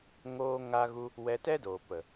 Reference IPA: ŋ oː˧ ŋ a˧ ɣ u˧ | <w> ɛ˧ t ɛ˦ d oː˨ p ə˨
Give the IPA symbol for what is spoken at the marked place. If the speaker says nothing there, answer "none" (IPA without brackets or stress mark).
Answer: w